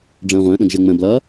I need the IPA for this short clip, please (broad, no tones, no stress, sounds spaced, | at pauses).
ɖ͡ʐ ə̃ː ʁʷ ə̃ː ɗ ə̃ ɡ ʒ ɪ ŋ͡m ə̃ b l ʌ